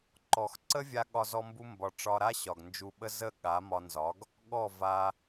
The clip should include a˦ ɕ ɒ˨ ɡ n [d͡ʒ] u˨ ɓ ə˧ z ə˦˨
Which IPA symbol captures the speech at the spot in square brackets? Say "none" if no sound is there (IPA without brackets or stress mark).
d͡ʒ